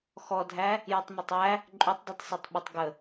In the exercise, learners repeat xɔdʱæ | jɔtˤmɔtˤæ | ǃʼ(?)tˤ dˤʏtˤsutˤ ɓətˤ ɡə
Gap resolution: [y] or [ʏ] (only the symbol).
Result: y